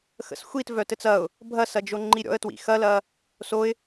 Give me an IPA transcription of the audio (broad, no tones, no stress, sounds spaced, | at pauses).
x ə̰ s xʷ i t v œ t ɘ t͡s ɐ ʊ̯ | bʱ ɐ s ɐ d͡ʒ o ŋ͡ǃ i ɾʲ ɔ̰ ə̯ t w ḭ x ɐ l ɐ | s o ɪ̯